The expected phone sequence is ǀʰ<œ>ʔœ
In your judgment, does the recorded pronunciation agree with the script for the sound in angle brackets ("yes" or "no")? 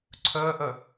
yes